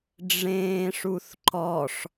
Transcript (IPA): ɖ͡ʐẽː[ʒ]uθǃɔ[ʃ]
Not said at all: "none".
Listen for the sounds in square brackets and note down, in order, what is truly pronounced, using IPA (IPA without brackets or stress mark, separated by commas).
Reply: ʂ, ʂ